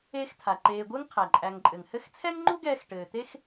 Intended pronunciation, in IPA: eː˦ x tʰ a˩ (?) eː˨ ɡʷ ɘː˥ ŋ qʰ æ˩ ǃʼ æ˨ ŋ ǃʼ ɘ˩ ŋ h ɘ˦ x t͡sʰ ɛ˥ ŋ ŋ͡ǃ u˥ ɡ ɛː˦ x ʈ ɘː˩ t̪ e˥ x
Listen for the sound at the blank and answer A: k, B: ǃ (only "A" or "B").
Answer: B